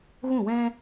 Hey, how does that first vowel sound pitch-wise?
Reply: falling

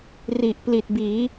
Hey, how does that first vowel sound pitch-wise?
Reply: low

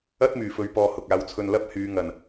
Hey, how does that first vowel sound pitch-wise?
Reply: high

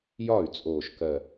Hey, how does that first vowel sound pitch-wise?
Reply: falling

